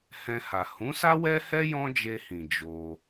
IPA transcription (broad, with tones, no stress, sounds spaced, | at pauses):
h ɛ̃˧ h a˨ h ũ˨˦ s a˦ w ɛ˦ h ɛ˦ j ɔ̃˦ d͡ʒ e˧ h ĩ˨ d͡ʒ o˧